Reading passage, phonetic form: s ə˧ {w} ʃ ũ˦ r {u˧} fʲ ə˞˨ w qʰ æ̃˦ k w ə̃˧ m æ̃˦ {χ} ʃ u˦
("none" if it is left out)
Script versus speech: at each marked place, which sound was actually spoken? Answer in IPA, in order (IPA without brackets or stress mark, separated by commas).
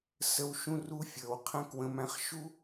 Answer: w, u˦, χ